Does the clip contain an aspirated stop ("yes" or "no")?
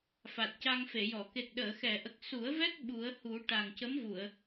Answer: no